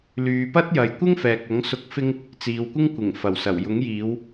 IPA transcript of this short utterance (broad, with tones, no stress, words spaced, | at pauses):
lyː˨pɐ˥t̚ jɐ˨jkʷɪ˥ŋ fɛː˨k̚ɐ˨˥ŋ sʊ˧k̚fɪ˥ŋ | t͡siː˨wkʷɪ˥ŋ kʷɪ˨˩ŋ fɐ˨˩wsɐ˨˩w jʊ˨˥ŋjiː˨˧w